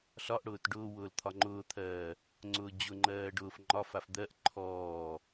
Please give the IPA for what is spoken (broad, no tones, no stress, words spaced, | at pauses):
ɬɒʔɽʊːt ɖʊːwʊːl t̪ʰɒŋ͡ǃʊːt̪ʰɜː | ŋ͡ǀʊːd͡ʑʊŋ͡ǃɜː ɖʊːf ŋ͡ǃɒfaf d̪ɜʔ ǃʰɔː